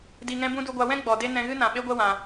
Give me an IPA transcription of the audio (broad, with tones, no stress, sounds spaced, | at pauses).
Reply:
d i˨ ŋ ɛ̃˧ b ũ˦ d u˧ ɡʷ a˧ w ɛ̃˦ ɡ͡b ɔ˨ d e˦ n ɛ̃˧ ɣ ɨ˦ n ã˨ ɓ e˦ ɡʷ ɛ˦ w ã˧